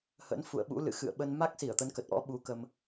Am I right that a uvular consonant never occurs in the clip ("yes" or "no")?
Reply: yes